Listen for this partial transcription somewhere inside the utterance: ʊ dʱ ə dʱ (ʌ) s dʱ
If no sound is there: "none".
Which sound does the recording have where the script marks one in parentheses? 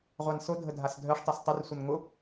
a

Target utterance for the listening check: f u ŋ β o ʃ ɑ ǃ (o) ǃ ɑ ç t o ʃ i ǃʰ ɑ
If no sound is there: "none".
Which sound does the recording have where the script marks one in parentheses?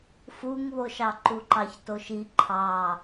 u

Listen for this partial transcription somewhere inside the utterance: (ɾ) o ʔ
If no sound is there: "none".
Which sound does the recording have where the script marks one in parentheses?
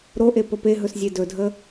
ɾ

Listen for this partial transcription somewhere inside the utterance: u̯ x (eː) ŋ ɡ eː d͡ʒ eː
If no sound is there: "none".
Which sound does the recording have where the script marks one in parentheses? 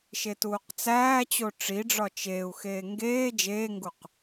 eː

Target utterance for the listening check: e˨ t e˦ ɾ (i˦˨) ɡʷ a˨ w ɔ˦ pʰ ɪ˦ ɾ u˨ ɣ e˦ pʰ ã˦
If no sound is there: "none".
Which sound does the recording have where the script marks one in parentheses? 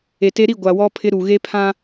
i˦˨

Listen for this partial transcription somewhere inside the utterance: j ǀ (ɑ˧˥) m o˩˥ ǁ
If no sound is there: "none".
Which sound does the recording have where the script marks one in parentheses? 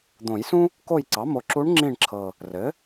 ɑ˩˥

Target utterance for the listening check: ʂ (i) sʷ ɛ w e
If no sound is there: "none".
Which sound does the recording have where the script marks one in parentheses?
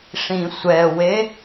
ĩ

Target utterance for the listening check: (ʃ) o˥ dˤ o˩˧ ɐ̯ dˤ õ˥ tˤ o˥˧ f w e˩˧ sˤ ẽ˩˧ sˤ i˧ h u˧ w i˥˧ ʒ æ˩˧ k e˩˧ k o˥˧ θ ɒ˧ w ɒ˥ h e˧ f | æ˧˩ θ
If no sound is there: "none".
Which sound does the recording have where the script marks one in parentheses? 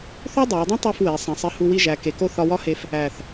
θ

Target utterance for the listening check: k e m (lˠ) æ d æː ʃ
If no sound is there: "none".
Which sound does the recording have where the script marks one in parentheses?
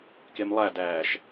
lˠ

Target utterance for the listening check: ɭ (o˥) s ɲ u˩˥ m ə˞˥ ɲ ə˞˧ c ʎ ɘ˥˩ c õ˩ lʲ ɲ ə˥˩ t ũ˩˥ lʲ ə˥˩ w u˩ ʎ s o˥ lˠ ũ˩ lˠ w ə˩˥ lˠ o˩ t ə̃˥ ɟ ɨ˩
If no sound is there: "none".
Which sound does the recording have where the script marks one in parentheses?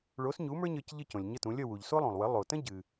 o˩˥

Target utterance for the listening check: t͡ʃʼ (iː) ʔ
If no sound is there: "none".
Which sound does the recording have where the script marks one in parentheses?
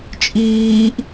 iː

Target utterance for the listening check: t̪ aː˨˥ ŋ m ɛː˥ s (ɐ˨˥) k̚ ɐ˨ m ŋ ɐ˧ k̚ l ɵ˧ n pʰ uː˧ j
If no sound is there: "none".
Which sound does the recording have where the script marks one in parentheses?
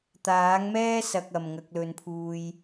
ɐ˧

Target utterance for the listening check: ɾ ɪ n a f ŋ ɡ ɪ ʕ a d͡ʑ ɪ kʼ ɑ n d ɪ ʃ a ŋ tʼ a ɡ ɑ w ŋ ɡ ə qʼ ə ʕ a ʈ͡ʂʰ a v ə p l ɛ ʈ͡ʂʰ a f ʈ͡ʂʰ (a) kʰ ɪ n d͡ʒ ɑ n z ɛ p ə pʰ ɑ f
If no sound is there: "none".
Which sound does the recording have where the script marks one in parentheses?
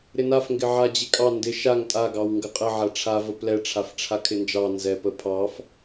a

